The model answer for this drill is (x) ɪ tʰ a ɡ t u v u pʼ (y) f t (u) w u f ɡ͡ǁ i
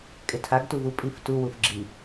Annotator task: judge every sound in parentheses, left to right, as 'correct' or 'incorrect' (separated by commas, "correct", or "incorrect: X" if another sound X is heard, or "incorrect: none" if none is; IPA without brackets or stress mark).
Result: incorrect: kʼ, incorrect: i, correct